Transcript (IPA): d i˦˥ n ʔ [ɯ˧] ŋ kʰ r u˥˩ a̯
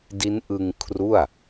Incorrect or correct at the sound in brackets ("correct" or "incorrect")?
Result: correct